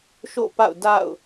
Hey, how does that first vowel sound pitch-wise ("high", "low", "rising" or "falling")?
falling